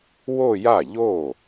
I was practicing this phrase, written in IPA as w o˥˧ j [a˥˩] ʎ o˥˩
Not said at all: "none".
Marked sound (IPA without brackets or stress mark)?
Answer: a˥˩